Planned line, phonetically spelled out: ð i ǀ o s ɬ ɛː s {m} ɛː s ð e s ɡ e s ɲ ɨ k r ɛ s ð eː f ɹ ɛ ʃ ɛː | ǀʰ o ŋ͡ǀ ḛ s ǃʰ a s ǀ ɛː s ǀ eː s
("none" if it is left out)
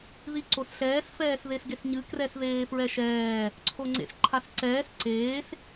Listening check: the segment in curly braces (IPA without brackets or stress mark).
f